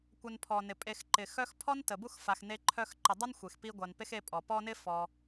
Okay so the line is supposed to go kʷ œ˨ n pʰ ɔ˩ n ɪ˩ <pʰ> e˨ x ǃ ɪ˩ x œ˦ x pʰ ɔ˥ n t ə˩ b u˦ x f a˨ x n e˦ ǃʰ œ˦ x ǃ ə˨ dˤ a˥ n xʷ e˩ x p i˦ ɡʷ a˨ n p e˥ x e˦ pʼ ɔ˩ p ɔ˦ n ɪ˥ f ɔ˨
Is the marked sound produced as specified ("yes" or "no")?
no